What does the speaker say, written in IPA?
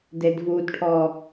d e d v u d ʈʰ ɔ

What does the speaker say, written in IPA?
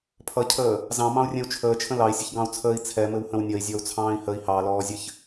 pʰ ʌ cʰ əː | z ɑ̃ m ɑ̃ u̯ rʲ ɛ̃ u̯ t͡ʃʰ əː t͡ʃʰ ə̃ l ɑ i̯ sʲ ə ç ɡ ɑ̃ u̯ t͡sʰ əː i̯ t͡sʰ ɛ m ɘ w h ə̃ w nʲ ʌ i̯ zʲ ɔ u̯ t͡sʰ ɑ̃ː i̯ h ə i̯ h ɑ l ɔː zʲ ɘ ç

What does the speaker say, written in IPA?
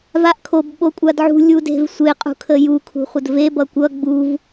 v a ʔ kʰ o b ɓ o kʷʼ a d ʕ ṳ lʲ u d e̤ v sʷ e qʼ ṳ kʰ ə j u kʰ ṳ χʷ ə d v e b ʌ kʷ ʌ ɡ͡b u v

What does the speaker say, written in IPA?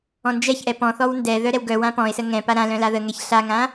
ɔ̃ n d͡ʒ ɛ ç ʔ ɛ p ɔ̃ θ ɔ w n d ɛ ð œ ɾ ɛ w ɡ œ w ã p ɔ̃ ɪ̯ s ə ŋ ɛ̃ p a ɾ ã l œ̃ l a ð ə ŋ ɛ ç ɬ a ŋ ã

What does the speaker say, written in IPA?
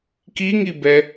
k i ŋ i b ɛ

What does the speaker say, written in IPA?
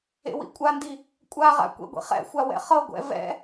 ḛ w ḭ kʷʼ a n d i | kʷʼ a ʁ a̰ kʷ ḛ ɡʷ ḭ χ ɛ̰ xʷ a w ɛ̰ χ ɤ ɡʷ ɛ̰ v ɛ̰

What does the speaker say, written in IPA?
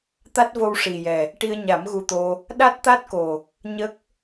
t̪ a˦˥ t̚ v o˧ w ʂ i˨˩ j ɛ˨˩ | ʈ i˧ ə̯ ɲ a˨˩˦ m ɣ u˧ t̪ o˧ | ɗ a˦˥ t̚ t̪ a˦˥ t̚ k o˨˩ | ɲ ə˦˥ k̚

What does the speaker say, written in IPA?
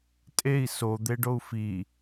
tʼ e i̯ s o d̪ e ɖ o u̯ f i

